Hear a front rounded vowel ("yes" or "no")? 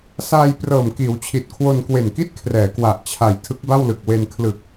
no